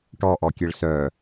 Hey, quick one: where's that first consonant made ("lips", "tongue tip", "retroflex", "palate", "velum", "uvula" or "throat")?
retroflex